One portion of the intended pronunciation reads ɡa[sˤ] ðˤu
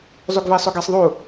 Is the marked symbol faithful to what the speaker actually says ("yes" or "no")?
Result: yes